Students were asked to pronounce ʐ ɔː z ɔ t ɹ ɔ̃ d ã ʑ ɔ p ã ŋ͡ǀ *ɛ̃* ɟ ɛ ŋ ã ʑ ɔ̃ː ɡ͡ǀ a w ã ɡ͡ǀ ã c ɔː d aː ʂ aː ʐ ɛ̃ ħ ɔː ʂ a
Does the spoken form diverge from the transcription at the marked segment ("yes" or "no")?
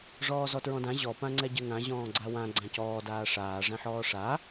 yes